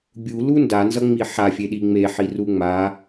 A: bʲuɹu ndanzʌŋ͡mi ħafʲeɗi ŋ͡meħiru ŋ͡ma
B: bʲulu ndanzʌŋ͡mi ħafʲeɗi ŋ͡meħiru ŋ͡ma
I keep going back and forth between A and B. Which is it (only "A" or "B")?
B